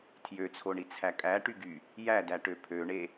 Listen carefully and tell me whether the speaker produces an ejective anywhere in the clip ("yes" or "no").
yes